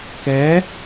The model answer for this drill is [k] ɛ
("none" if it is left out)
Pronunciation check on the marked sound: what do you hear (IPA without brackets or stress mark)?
k